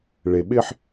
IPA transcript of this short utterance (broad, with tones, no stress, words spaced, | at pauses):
ɭe˨ɓɪ˦ħ